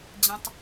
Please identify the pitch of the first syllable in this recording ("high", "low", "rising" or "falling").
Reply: low